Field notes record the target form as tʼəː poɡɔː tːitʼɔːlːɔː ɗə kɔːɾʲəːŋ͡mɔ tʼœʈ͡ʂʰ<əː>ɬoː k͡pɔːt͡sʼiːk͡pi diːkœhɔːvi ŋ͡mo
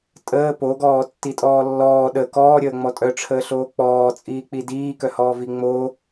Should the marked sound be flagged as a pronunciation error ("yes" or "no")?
no